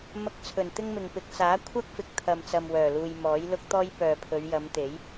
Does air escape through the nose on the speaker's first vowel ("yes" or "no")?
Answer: no